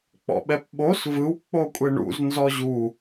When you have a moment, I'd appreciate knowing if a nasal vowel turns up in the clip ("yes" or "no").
no